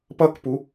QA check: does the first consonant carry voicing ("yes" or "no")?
no